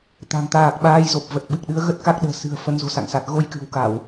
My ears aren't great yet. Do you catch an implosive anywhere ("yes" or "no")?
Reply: yes